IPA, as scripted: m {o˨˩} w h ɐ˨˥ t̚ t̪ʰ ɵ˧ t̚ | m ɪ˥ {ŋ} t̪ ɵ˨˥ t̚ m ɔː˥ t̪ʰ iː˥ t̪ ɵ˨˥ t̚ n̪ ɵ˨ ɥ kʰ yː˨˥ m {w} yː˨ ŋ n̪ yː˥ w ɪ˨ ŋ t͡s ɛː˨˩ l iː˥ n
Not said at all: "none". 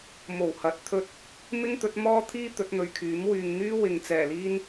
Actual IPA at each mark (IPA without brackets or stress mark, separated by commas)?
o˨˩, ŋ, w